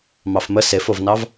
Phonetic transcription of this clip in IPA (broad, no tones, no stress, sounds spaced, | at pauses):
m ɑ f m ə s e f o v n ɑ v